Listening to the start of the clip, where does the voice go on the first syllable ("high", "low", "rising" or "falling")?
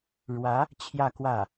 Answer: rising